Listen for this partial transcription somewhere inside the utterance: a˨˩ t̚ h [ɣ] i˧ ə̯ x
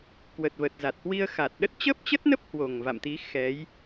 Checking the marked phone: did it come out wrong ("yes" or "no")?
yes